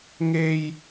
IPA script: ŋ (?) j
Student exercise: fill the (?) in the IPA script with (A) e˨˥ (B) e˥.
B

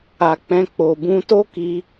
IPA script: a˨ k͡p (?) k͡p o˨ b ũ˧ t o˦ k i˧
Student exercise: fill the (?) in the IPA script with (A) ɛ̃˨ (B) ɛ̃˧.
B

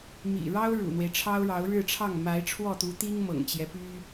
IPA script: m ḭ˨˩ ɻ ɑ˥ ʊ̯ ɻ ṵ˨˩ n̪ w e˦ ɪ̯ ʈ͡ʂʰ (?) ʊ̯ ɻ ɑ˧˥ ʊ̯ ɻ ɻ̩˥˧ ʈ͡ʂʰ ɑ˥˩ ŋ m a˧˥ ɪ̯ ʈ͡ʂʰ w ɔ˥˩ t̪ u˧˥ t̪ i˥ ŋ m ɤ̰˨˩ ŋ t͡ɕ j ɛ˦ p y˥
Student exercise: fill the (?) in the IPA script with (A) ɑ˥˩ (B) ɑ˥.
B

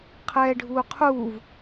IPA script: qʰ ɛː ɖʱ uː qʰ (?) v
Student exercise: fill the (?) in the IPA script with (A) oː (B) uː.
B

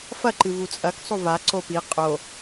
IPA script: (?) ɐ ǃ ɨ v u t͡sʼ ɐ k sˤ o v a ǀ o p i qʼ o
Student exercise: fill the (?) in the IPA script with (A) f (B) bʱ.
A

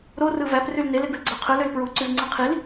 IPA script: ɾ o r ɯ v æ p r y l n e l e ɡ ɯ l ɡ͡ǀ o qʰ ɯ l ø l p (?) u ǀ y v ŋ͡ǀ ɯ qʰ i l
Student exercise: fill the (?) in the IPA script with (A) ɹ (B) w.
A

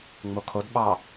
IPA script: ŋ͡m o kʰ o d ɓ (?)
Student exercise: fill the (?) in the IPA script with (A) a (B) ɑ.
B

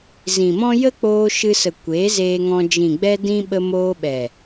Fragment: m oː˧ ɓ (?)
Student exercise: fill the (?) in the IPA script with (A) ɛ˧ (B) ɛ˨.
B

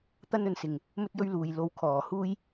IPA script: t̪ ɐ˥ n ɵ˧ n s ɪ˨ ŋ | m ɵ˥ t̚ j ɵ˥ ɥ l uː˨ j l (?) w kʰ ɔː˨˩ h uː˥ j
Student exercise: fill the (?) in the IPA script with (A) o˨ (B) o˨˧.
A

